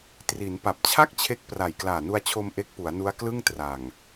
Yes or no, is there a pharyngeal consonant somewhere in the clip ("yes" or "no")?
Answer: no